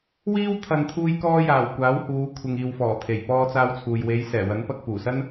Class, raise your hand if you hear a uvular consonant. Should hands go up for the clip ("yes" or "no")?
no